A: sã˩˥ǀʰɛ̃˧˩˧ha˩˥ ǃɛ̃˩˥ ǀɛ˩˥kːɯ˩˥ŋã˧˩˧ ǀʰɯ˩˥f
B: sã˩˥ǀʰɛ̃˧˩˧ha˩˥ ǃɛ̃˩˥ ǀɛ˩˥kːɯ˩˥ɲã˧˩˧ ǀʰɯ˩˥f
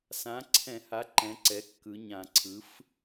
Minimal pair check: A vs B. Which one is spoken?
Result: B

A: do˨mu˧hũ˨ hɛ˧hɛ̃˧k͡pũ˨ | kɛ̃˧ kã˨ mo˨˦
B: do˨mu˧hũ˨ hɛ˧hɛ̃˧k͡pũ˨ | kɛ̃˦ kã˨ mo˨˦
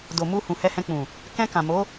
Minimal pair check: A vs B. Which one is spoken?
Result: A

